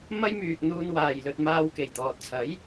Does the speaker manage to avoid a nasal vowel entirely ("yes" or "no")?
yes